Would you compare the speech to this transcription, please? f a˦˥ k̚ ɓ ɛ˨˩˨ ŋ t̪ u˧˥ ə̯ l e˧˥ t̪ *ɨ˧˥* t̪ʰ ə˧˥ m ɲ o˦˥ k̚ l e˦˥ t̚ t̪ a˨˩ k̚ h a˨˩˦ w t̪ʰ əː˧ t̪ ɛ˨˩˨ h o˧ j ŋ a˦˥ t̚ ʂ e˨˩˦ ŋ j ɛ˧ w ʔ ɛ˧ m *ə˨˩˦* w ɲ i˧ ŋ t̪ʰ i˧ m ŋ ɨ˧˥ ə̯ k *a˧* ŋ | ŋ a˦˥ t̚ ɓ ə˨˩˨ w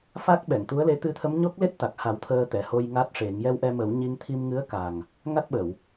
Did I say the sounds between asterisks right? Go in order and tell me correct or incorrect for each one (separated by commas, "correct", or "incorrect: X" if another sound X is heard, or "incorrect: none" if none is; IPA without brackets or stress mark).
correct, correct, incorrect: a˨˩